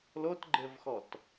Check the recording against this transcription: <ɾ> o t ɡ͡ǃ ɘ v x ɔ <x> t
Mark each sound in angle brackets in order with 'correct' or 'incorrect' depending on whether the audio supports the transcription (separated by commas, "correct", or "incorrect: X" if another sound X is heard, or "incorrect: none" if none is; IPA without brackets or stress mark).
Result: incorrect: l, incorrect: none